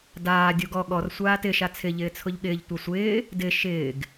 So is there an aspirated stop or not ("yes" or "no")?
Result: yes